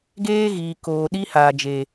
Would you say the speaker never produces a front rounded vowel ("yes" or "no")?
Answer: yes